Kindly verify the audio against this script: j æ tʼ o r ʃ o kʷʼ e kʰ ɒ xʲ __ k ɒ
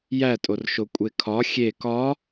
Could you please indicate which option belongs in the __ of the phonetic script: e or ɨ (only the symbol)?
e